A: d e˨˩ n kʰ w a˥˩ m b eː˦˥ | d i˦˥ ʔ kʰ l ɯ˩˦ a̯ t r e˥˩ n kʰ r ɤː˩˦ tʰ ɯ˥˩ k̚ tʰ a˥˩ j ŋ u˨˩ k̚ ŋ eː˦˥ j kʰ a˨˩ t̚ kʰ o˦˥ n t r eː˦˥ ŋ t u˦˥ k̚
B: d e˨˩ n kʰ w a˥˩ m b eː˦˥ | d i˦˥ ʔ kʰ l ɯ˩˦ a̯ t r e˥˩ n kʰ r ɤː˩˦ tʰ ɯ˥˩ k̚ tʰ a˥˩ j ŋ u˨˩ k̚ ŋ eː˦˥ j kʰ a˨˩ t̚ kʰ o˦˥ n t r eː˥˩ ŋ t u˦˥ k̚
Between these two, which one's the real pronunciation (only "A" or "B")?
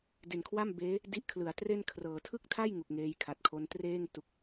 B